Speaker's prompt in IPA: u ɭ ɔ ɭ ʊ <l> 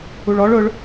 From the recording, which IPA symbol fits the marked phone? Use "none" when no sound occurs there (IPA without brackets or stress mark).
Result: ɭ